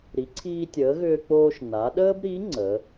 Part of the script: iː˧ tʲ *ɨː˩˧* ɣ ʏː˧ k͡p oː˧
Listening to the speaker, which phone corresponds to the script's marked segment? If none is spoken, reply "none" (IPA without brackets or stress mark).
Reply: əː˩˧